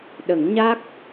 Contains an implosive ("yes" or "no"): yes